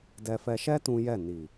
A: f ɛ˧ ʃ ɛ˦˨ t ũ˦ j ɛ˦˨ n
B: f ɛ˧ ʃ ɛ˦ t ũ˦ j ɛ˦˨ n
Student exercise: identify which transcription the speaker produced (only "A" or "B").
B